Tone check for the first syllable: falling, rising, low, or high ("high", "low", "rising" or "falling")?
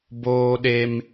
high